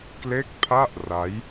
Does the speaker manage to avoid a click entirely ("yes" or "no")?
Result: yes